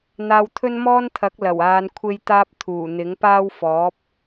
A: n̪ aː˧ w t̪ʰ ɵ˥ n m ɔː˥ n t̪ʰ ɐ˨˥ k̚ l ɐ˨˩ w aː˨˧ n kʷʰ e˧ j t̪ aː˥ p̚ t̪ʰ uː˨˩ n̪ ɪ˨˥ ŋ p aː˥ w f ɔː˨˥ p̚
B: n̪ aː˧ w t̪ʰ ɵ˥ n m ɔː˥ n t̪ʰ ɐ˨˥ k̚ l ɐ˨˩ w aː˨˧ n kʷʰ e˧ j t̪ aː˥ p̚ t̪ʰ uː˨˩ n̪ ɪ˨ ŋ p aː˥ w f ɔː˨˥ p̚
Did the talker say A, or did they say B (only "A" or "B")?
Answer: A